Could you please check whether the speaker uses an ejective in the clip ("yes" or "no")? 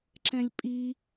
yes